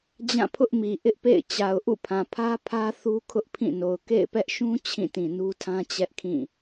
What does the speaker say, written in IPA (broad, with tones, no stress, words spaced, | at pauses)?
d͡ʑã˦˨pʰʊ˦ʔmi˨ ʔɪ˦ʔpḛ˦˨ɪ̯ t͡ɕa˨ʊ̯ʔṵ˦˨pʰã˨ pʰä˦ pʰä˦ θu˦kʰʊ˦ʔpʰĩ˦˨no˨ʊ̯ kḛ˦˨ɪ̯pɛ˦ʔ ʃũ˦ t͡ɕʰĩ˦˨tĩ˨nu˦tʰã˦ t͡ɕɛ˦ʔkʰĩ˦˨